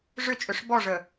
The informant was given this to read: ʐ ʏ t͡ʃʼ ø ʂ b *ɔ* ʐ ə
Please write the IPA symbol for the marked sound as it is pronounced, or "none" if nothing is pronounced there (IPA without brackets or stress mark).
ɔ